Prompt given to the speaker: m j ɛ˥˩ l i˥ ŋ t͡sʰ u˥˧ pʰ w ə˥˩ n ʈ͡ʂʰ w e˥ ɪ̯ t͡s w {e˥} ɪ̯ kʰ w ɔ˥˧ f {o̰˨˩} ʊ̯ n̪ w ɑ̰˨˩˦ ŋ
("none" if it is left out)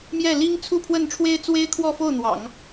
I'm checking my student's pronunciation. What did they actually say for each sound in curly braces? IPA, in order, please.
e˥, o˥˩

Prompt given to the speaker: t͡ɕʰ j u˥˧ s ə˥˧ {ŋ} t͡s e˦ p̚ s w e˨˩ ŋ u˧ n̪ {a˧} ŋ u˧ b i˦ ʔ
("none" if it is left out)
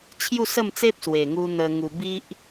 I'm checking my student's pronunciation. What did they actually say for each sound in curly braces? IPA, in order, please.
m, ə˧

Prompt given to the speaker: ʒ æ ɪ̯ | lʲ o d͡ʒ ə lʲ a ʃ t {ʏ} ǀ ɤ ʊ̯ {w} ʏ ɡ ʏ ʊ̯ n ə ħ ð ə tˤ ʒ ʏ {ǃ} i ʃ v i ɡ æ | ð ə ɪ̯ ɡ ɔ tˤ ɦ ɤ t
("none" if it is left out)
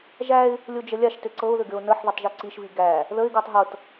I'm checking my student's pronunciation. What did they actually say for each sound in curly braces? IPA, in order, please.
ʏ, ð, ǀ

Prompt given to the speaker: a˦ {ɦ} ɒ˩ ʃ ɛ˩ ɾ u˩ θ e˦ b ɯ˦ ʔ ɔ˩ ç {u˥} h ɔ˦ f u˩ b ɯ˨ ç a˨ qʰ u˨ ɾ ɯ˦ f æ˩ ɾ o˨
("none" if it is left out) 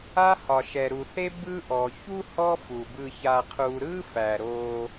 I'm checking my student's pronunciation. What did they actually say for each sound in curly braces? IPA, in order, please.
h, u˥

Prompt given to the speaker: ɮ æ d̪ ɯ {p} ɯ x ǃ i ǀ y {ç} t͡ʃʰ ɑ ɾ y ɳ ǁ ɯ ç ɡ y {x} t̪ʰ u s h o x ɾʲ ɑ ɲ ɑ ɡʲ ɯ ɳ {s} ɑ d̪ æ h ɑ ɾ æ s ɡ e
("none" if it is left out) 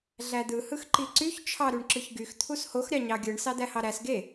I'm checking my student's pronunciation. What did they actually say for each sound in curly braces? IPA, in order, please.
h, ç, x, s

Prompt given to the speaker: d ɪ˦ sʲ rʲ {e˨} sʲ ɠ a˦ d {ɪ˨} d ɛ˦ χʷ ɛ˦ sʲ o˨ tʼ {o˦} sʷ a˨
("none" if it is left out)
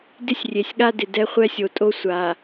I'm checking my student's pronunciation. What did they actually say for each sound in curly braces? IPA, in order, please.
e˨, ɪ˨, o˦

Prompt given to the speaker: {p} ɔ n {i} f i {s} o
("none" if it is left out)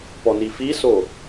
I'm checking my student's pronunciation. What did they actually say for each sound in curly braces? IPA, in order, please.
p, i, s

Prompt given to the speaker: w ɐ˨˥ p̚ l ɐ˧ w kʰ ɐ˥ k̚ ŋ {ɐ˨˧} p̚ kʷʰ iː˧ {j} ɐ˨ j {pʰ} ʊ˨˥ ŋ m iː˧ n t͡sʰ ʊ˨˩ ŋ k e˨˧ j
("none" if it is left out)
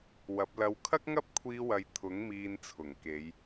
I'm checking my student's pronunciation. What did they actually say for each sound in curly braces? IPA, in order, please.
ɐ˥, w, t̪ʰ

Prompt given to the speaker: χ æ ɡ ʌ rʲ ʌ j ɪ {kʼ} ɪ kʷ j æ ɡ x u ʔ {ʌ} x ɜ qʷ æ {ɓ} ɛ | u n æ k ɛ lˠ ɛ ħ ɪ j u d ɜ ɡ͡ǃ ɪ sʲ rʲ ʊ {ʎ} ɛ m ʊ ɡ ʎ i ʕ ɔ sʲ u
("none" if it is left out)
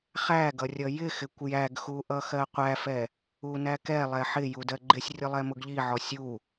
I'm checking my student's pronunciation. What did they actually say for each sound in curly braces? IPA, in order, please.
x, ʌ, f, lˠ

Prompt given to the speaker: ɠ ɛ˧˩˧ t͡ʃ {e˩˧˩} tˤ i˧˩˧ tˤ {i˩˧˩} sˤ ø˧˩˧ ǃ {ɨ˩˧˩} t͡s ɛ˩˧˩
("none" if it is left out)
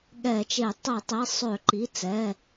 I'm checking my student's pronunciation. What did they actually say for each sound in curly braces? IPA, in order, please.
e˧˩˧, i˩˧˩, i˩˧˩

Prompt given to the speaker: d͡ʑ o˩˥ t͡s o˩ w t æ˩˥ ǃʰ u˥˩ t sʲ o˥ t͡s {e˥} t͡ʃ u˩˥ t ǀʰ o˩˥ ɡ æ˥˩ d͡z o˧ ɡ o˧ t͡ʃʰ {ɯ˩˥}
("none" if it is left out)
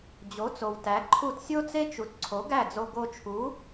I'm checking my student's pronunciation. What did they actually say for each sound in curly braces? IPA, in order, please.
e˥, u˩˥

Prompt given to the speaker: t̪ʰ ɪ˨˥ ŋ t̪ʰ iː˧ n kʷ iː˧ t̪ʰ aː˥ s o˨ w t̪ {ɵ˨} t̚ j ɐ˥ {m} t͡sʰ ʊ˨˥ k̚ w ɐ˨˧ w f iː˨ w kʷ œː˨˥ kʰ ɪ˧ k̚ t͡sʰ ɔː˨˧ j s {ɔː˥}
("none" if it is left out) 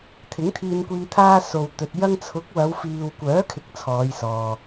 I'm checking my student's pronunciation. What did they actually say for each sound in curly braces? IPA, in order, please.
ɵ˨, ŋ, ɔː˨

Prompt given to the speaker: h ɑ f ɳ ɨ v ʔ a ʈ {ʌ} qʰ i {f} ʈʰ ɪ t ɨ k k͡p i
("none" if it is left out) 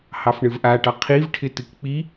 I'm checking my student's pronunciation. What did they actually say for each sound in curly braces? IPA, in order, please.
ɑ, v

